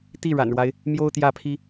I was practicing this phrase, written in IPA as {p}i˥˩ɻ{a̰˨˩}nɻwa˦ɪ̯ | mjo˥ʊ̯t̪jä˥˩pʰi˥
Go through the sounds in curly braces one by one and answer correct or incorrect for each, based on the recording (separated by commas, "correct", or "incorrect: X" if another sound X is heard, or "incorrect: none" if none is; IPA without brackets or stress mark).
incorrect: t̪, correct